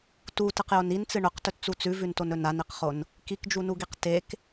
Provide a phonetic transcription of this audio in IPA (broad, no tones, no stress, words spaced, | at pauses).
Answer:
tutɨqjon int͡sɨ ɳɵqtɵtt͡su t͡sʉvʉntonɵ naniqχon | kikd͡ʒunuɡiq tek